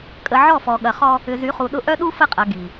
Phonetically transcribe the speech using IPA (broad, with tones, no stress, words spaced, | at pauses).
kʼə˨ʕɔ˦˨fɔ˨ ɠɐ˨χɔ˦ | ʏ˨zy˨˦χu˨ɗʊ˦ ʔœ˦ɗu˦ fə˦qʼɐ˨ ɡi˨